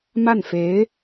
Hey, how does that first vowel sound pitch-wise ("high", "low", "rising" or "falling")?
falling